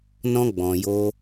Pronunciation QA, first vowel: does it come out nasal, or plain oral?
nasal